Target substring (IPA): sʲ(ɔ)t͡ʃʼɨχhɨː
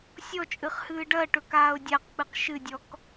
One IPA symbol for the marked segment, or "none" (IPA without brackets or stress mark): ɔ